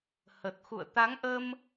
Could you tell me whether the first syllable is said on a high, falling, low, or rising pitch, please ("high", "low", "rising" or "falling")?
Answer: low